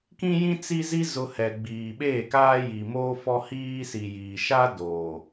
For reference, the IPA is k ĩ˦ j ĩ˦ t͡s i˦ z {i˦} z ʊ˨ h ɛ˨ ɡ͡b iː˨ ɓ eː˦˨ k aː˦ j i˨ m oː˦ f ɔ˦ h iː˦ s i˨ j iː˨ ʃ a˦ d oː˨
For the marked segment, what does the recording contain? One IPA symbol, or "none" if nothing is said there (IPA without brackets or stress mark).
i˦